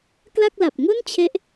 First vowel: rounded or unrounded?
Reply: unrounded